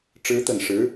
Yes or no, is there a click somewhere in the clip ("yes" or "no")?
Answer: no